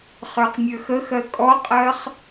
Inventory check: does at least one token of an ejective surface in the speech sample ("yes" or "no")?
yes